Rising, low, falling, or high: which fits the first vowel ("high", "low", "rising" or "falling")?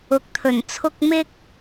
rising